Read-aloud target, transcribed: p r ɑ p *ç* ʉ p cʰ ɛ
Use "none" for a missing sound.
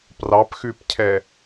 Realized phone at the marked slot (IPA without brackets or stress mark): x